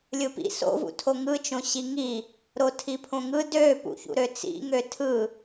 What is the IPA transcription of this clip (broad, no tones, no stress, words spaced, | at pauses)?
lʲɯpḭ so̰vṵtʰo ŋɯt͡ʃõ ɕiŋi | ɾotʰipʰõŋɯ døpṵçṵɾø t͡sḭŋø tʰɯ